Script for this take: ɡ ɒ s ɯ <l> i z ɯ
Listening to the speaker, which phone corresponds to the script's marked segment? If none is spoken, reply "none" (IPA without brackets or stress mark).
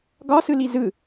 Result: l